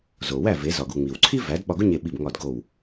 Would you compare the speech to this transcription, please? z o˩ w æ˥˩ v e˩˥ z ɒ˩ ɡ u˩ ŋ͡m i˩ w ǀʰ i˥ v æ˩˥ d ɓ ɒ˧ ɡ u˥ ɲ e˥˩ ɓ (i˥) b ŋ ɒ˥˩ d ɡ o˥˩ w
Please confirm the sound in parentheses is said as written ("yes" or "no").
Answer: no